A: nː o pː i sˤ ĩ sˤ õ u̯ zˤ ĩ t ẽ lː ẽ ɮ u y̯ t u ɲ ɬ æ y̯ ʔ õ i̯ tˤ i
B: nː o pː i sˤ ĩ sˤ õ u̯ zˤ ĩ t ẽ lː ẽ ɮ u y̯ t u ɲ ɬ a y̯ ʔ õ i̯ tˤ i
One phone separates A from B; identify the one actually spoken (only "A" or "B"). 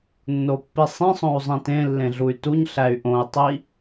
A